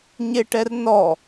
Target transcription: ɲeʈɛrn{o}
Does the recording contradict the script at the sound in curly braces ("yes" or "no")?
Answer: yes